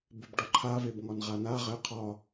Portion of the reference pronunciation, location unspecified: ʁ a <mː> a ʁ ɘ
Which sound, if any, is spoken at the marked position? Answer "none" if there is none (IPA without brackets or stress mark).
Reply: n